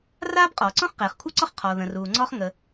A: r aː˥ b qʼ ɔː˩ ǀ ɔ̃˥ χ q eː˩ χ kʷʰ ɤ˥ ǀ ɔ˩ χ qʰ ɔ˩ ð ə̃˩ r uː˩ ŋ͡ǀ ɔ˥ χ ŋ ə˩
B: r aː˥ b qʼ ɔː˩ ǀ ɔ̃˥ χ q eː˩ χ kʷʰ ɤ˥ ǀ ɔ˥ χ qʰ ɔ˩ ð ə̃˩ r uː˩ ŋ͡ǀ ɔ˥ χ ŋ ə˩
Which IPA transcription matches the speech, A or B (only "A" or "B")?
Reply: B